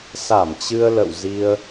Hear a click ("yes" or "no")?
no